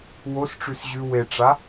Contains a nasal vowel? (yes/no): no